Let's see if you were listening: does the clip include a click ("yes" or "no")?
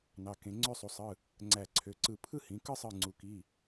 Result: yes